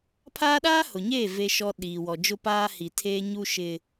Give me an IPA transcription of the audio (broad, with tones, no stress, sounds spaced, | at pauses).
pʰ aː˦ ɗ aː˦ h ʊ˨ ɲ eː˦˨ v e˦ ʃ ɔ˦ ɗ iː˨ w ɔ˨ d͡ʒ ʊ˦ p aː˦ h i˨ tʰ eː˦ ɲ u˦ ʃ ɪ˦